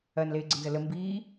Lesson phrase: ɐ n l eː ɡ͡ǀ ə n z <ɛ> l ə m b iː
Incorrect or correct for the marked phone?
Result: incorrect: ə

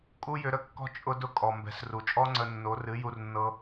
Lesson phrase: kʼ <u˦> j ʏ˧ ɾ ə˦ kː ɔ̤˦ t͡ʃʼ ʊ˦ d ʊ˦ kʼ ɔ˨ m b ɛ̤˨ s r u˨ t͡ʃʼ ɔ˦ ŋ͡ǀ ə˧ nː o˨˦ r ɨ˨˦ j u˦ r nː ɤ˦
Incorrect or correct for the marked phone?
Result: correct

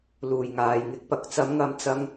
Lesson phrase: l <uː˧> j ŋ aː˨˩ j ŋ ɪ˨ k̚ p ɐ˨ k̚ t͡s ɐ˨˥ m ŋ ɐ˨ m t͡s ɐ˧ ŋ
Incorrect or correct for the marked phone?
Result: incorrect: uː˨˩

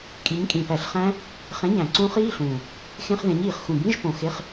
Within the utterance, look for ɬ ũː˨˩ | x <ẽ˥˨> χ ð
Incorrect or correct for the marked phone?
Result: incorrect: ẽ˧˥˧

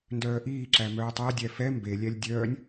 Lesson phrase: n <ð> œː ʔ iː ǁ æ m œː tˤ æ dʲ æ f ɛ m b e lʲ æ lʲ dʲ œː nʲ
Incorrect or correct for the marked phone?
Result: incorrect: d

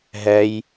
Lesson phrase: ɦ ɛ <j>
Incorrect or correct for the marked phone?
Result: correct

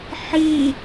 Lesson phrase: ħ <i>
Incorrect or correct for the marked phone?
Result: correct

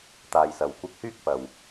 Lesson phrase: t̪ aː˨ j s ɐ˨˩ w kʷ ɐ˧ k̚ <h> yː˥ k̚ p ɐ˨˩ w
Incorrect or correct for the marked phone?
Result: correct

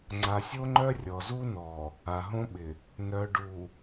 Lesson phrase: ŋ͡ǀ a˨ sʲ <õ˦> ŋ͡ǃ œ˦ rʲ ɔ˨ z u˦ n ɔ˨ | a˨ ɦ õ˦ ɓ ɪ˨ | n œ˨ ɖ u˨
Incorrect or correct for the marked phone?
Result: incorrect: o˦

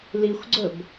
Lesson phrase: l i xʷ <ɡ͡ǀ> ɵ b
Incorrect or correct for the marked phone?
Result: correct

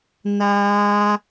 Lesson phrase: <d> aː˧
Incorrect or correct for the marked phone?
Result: incorrect: n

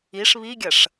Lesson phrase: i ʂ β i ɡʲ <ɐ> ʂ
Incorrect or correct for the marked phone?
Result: correct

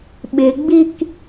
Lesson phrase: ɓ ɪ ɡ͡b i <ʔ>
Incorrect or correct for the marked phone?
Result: incorrect: k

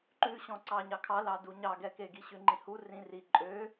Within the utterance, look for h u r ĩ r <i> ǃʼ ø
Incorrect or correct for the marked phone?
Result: correct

